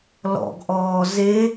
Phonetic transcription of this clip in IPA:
l ɔ̰ ɡ ʔ ɔː z e

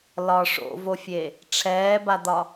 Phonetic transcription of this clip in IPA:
l ɒ ʂ o̰ v o fʲ e | ʈ͡ʂʰ ɛː b a d̪ ɒ

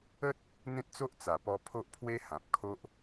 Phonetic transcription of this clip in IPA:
ə˦ t̚ | n̪ ẽ˦ t̚ t͡s o˦ ʔ t͡s a˨˩ p ɔ˧ pʰ o˦ ʔ pʰ w e˦ h ã˨ p̚ kʰ o˦ ʔ

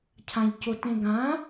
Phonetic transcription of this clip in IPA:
cʰ ã ʎ c o t ẽ ɡ ã

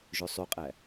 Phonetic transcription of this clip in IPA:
ʒ ø sˤ y qʼ æ

